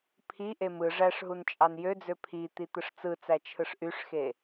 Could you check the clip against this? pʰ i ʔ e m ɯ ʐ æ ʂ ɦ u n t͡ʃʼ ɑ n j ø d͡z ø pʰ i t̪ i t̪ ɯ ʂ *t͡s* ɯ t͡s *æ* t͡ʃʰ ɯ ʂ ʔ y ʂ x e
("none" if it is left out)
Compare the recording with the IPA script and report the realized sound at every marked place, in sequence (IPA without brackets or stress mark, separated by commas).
t͡s, æ